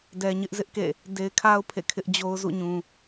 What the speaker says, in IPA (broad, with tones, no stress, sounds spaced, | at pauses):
d ɛ˨ ɲ ɪ˦ ʔ z ɪ˦ ʔ k ḛ˦˨ | d e˨ ɪ̯ kʰ a˦ ʊ̯ pʰ ḛ˦˨ kʰ ɪ˦ ʔ d͡ʑ o˦ ʊ̯ z ṵ˦˨ ɲ ũ˨